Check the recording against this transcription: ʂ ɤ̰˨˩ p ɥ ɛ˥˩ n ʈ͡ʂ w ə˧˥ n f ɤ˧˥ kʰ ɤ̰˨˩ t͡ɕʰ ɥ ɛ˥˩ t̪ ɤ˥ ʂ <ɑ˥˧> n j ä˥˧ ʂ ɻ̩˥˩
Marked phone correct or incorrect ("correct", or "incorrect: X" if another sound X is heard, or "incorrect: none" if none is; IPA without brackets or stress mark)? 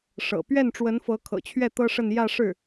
incorrect: ə˥˧